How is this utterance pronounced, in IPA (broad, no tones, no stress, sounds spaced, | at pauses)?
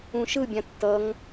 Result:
ũ ʃ ɯ bʲ ã tː ʌ ŋ